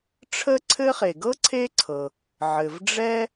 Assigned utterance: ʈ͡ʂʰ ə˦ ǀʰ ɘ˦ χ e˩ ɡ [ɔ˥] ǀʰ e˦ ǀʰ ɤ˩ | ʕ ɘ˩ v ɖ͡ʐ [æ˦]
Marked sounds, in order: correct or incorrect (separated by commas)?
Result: incorrect, incorrect